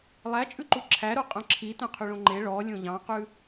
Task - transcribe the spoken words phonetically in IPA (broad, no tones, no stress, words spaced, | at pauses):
lˠæt͡ʃʼʉǃu ǁʰæɾo qʼœ̃ǁʰitœ̃ qʰyɭõŋ͡ǃe ɭɔ lʲõʎɑ̃qʉ